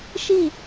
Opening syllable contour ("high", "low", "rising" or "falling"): falling